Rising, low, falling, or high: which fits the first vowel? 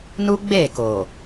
high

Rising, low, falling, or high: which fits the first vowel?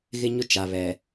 high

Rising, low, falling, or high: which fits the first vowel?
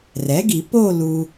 rising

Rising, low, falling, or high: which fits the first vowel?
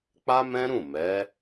high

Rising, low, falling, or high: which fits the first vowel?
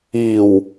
low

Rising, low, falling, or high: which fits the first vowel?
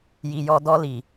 low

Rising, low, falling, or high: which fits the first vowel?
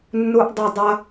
low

